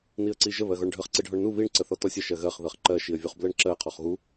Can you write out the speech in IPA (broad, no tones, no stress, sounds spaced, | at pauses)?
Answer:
n i ə̯ ǀ i ʒ ə β ɜ ɣ ɔ ɳ ɖʱ ə χ ǀ i ɖʱ ɔ ɳ n u β i ɳ ǀ ə θ ɔ t ɔ sʲ ə ʃ ɜ ɣ ɜ χ ð ɜ χ ǃ ɜ ʃ i ə̯ vʲ u χ b l ɜ ɳ ǁ ɜ qʰ ɔ χ ɣ u